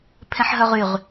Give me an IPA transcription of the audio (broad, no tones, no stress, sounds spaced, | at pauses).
pʰ ẽ ħ ɦ œ ʁ y ʁ